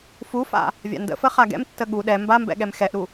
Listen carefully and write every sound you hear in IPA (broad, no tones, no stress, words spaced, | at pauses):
fufa̰ | vʲa̰ndə̰fə χaɡɛ̰mtːə ɠu ɗɛ mbambɛ̰ ɠɛmxɛʔɾu